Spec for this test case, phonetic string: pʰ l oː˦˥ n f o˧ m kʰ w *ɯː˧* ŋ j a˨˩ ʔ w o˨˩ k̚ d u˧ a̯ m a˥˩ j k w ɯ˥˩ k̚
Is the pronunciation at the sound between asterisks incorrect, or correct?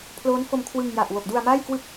incorrect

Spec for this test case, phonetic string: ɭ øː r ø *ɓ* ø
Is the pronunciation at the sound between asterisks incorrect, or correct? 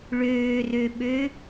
correct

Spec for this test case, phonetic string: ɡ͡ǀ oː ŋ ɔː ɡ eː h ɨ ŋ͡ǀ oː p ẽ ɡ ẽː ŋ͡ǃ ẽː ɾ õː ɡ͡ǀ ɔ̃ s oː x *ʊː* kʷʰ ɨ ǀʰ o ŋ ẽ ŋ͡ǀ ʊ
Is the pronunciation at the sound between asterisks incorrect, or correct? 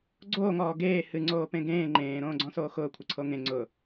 correct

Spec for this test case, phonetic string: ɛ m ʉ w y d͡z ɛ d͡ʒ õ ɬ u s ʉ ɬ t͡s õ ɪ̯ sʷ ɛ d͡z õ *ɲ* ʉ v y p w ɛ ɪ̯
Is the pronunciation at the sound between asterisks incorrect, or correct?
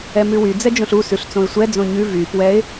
correct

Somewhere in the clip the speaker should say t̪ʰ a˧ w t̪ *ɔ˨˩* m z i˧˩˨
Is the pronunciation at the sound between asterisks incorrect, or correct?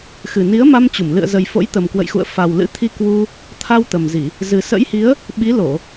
incorrect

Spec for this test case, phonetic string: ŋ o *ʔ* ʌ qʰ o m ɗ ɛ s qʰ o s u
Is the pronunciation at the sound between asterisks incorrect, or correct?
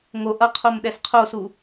correct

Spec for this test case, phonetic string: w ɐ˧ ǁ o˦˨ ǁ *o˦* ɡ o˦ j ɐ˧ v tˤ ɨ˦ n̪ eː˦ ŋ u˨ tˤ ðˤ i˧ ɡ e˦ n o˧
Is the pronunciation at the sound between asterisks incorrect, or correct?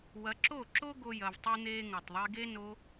correct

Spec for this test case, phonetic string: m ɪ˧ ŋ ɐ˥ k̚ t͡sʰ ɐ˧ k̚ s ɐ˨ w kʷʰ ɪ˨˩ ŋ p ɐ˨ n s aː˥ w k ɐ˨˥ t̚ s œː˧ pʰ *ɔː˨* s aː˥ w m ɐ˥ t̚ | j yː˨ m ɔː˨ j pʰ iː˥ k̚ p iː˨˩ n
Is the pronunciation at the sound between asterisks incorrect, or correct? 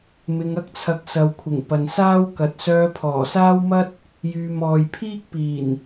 incorrect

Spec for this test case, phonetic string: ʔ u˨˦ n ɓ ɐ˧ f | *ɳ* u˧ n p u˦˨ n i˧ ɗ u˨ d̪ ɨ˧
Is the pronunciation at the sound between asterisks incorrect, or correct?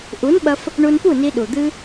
correct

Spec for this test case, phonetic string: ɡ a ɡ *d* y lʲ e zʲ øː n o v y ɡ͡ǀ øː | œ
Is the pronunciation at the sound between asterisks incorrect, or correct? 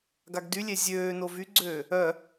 correct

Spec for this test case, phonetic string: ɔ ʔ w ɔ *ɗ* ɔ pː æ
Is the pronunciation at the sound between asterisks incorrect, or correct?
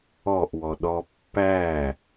correct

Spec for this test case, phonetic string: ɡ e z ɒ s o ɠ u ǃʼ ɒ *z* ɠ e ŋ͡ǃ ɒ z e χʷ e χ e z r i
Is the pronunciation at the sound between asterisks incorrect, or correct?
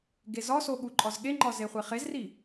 correct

